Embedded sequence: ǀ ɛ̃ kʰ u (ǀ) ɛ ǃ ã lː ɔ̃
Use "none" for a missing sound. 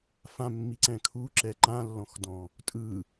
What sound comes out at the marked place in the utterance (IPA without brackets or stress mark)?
ǁ